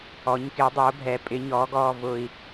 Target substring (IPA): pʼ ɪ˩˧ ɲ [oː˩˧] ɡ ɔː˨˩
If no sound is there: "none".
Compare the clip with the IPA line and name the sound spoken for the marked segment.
ɔː˩˧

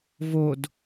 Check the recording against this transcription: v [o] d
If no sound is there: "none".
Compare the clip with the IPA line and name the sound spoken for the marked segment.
o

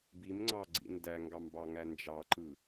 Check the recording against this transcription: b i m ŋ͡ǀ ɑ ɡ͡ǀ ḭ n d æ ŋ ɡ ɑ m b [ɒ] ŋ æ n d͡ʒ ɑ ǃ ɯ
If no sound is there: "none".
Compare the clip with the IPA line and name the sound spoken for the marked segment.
ɑ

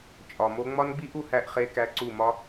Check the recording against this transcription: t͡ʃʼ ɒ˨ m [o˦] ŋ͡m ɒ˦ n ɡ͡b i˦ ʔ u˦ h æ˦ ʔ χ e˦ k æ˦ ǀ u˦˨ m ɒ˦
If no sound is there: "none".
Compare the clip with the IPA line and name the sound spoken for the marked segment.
o˦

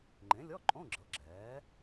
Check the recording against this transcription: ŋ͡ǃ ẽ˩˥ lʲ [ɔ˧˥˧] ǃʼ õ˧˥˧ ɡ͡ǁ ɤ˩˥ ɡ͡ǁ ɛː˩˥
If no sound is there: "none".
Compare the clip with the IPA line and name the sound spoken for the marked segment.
ɔ˧˥˧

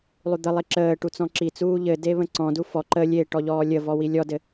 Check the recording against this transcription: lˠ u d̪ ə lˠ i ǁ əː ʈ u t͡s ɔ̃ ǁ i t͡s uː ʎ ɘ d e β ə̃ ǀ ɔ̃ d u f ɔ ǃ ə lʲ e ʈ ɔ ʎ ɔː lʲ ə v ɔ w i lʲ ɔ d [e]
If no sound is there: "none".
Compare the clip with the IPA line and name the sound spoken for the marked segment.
ɘ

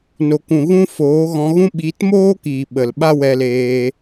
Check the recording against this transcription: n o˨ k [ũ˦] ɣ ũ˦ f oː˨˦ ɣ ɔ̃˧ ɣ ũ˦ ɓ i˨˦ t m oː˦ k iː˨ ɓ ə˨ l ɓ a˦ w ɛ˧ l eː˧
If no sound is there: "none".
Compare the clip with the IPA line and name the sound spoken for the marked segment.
ũ˨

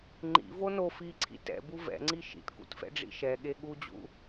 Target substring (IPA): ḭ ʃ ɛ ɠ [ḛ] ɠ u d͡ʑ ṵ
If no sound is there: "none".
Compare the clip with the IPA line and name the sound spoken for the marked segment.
e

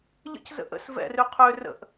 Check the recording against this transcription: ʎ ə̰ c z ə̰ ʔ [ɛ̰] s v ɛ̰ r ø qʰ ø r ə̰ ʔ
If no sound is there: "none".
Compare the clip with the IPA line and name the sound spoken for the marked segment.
ə̰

